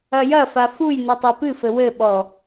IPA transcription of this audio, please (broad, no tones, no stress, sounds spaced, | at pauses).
ɐ j ɐ f a f u j n u tˤ o p ɨ f ɘ w ɘ ɓ ɔ